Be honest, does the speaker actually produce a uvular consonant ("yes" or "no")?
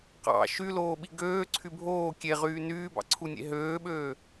yes